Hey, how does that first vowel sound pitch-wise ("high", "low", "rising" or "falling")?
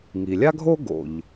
low